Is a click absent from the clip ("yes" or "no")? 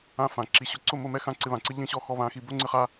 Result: no